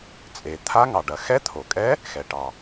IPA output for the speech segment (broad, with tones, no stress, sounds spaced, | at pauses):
t͡sʼ e˩ t̪ʰ a˧˥ ŋ ɑ˩ ɖ ɐ˩ x ɛ˧˥ t̪ʰ o˩ kʼ ɛ˧˥ | x ɛ˩ ʈ ɑ˩